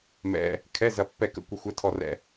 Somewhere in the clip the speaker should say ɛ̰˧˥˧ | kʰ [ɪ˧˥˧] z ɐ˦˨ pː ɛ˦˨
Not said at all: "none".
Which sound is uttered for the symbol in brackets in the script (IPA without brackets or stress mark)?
ɛ˧˥˧